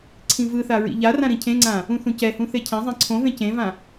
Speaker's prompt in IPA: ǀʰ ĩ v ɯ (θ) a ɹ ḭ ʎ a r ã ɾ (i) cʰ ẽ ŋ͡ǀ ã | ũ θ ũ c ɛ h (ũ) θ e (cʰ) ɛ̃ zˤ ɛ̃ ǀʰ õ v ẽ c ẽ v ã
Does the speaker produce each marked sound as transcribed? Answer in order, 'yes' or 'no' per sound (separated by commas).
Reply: yes, no, yes, yes